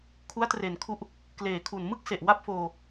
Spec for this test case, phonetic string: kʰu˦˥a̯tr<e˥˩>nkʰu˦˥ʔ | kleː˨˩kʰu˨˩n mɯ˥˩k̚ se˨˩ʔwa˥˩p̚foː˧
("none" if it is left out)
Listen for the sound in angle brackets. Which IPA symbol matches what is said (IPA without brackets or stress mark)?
e˨˩